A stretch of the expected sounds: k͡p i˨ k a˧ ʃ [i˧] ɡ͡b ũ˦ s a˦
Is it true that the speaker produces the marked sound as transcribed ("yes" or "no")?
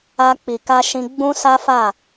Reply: no